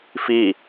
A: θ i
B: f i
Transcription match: B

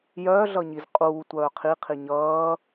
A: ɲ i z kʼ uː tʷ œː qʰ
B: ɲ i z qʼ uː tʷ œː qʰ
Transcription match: B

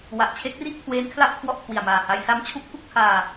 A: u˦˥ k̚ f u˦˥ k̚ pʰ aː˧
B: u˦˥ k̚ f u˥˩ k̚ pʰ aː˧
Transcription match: B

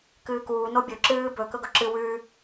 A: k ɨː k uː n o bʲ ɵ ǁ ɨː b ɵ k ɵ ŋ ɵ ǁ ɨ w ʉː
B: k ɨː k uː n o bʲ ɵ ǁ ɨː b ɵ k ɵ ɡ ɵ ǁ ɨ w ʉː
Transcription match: B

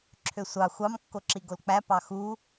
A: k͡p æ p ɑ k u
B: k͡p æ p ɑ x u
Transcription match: B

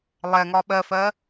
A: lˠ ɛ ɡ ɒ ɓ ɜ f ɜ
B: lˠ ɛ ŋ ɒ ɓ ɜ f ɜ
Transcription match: B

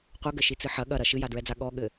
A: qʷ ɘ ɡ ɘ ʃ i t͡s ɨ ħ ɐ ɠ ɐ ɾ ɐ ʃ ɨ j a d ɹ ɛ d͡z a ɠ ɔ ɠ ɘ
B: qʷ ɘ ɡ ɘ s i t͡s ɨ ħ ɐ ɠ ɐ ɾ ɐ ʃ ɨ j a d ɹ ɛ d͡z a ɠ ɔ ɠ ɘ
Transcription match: A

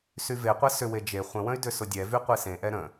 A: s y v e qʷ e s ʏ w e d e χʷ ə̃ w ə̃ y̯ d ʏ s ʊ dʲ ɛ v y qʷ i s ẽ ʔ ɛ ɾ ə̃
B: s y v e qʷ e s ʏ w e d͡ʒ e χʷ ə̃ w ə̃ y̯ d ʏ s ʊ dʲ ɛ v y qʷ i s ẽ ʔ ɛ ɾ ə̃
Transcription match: B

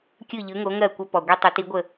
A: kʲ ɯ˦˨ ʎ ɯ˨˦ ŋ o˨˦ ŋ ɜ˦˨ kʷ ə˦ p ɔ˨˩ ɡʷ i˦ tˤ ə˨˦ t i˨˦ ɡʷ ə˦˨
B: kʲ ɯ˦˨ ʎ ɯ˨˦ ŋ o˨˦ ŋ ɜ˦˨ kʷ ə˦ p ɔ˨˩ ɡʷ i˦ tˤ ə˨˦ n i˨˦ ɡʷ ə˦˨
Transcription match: A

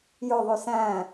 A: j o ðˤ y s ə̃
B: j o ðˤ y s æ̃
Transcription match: B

